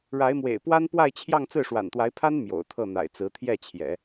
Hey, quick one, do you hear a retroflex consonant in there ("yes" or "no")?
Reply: yes